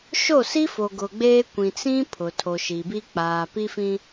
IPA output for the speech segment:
ʃ o˦˨ s i˦ f o˨ ɡ ʊ˨ ɡ͡b eː˦ kʷ ĩ˨ t͡s ĩ˦ pʰ ʊ˨ tʰ o˨ ʃ i˨ b i˦ k͡p aː˨ p i˦ f ĩ˦

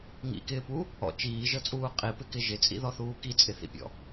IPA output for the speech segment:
ŋ ḭ k ɪː p u | ɔ̰ t͡ʃ iː ʒ ɤ t͡sʼ uː qʼ i p ɪ k ɪ ʒ ɪ t͡sʼ ḭ ð ɔ θ uː k i t͡sʼ ɪ θ ḭ pʲ ɔ̰

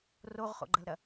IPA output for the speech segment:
r o ʁ χ o̰ ɡ͡ǃ ɐ l ɾ ɐ

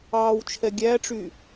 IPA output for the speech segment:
ɑː w t͡ʃʰ ɛ ɡʲ æ ʈ͡ʂ y

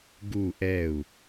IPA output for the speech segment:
ɡ u ʔ ɛ u̯

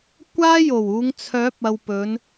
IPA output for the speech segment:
kʷ aː˥ j o˨˩ w uː˨˧ ŋ t͡sʰ œː˨˥ p̚ ɐ˨ w p ɵ˨˧ n

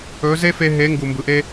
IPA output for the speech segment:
ɵ˨˦ z e˦ f e˧ ɦ e˨˦ ŋ ɡ u˨ m b ɯ˨ ʔ e˦

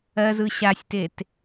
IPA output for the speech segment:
ɜ z ɯ ɕ a sʲ t e t

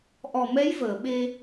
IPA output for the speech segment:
ʔ ɔ˨˩ m ɛ˧˥ j v əː˨˩˨ ɓ e˧

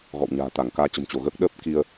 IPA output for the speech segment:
ɣ ɔ̰˧˨ w ɲ a̤ː˨˩ t̪ a˧˩ ŋ k aː˧ t͡ɕ ə̤˨˩ m t͡ɕ o˧˩ ɣ əː˦˥ k̚ ɗ əː˦˥ p̚ k i˧ ə̯

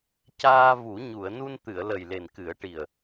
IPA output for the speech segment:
c aː˧ v u˨˩˦ ɲ u˨˩˨ ə̯ n u˧ n t̪ ɨ˨˩˨ ə̯ l ə˨˩ j l e˨˩ n k ɨ˨˩˦ ə̯ ʈ i˨˩ ə̯

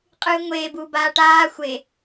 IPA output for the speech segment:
qʼ ɨː ŋʷ eː b uː b aː ʈ aː xʷ e

